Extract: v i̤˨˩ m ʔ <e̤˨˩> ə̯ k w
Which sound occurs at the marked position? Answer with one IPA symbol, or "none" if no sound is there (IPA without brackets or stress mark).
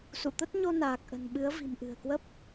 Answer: ɨ̤˨˩